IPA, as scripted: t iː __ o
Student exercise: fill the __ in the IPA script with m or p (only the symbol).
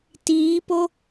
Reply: p